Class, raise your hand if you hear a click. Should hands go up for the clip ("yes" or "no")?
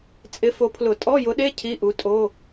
no